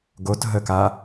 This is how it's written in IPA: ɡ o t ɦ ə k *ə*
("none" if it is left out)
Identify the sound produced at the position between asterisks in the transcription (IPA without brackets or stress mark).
a